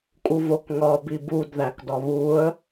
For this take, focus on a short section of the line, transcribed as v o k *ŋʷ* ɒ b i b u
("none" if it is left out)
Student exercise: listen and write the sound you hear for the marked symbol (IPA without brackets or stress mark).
ŋ